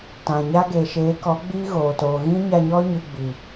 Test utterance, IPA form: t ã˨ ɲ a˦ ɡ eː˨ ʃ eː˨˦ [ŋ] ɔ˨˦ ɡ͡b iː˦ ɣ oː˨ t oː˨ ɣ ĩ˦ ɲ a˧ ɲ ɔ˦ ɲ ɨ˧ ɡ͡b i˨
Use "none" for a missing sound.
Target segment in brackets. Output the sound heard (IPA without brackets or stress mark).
k